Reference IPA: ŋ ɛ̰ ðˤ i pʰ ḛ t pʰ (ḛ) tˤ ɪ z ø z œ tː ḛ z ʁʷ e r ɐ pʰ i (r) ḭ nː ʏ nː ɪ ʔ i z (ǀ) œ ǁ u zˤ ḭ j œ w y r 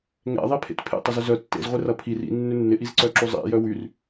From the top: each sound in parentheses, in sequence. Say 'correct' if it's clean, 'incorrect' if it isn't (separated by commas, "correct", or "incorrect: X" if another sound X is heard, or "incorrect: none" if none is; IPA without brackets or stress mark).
correct, correct, correct